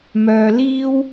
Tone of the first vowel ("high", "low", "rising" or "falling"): low